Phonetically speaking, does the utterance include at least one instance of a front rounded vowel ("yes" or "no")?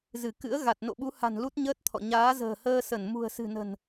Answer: no